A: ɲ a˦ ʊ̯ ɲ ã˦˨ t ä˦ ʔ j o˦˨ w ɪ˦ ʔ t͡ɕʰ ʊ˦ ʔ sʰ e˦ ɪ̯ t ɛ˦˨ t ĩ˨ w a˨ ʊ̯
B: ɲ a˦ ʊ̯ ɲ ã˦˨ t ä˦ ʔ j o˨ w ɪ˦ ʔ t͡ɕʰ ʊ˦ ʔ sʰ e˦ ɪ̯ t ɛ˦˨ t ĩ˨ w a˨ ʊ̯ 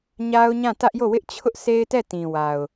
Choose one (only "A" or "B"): A